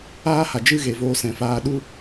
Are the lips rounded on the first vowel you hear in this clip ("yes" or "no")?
no